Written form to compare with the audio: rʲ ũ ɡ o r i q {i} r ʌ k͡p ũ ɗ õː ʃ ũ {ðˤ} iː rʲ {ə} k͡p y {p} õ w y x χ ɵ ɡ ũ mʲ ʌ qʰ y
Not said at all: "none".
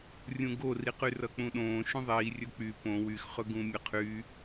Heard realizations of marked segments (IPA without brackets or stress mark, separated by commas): y, ðˤ, ɵ, p